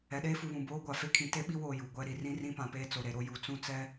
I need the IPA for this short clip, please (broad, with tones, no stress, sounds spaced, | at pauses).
ɛ˨ ɗ eː˦ f u˨ β ũ˨ b oː˦ ɡʷ a˨ f e˦ kʰ ĩ˨ t e˦ ɓ i˦ w oː˨ j u˨ ɡʷ ɛ˦ ɾ i˨ r ĩ˦ r ĩ˦ p ã˨ p eː˦ t͡s o˨ ɾ e˨ ɾ o˦ j u˨ t͡s ũ˦˨ t͡s ɛ˦